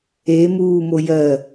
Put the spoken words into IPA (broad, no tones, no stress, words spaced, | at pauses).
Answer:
e muːmo jɜ